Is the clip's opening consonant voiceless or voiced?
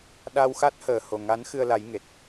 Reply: voiced